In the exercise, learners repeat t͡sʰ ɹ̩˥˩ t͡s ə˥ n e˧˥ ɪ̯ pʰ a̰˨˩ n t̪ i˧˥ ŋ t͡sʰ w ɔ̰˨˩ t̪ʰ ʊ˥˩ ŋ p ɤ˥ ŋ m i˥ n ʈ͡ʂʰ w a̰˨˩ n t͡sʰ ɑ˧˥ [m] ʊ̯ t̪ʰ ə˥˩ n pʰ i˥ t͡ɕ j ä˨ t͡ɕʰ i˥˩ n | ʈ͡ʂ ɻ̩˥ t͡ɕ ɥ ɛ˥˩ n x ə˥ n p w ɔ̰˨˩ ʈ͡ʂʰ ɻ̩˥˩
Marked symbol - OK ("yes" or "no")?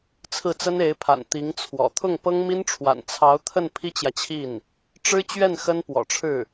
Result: no